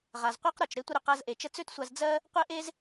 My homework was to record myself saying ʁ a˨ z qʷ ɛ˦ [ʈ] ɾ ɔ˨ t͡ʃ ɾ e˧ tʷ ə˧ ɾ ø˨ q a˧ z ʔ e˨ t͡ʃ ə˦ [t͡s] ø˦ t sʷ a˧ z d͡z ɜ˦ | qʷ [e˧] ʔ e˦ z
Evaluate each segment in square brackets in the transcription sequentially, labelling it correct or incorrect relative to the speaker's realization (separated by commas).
incorrect, correct, incorrect